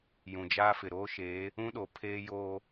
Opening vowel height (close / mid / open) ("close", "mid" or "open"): close